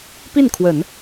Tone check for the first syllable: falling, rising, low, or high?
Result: falling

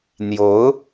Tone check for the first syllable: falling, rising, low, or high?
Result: rising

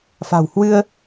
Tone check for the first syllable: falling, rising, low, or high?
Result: low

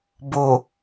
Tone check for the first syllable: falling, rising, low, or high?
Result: low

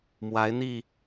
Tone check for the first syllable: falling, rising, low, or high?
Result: rising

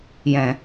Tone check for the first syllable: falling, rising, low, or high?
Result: low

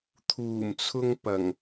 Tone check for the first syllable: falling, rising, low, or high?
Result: low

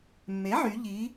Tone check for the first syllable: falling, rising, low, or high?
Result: rising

